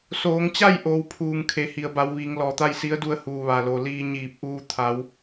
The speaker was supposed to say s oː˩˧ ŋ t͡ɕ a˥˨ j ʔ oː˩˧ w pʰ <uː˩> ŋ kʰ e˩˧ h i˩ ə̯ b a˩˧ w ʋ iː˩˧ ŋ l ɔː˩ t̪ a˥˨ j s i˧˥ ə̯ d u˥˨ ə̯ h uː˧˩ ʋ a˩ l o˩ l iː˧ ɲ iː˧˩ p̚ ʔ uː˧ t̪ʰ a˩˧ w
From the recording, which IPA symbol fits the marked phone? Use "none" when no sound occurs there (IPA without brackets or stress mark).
uː˩